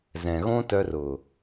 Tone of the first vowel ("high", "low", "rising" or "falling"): low